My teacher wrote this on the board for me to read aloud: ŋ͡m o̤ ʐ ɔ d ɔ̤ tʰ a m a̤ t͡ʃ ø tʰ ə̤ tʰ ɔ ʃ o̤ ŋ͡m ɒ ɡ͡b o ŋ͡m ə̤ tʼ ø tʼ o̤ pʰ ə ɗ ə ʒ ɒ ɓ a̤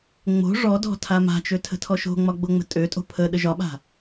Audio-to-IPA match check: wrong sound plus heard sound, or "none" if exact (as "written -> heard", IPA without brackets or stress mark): none